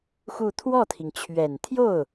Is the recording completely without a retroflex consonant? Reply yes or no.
yes